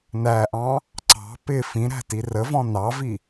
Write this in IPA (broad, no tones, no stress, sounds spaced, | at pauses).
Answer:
n æ ʔ ɑ̃ | ǀ ɑ̤ p ɪ f ĩ ɾ æ̤ t i r ə v ɔ̃ n ɑ v i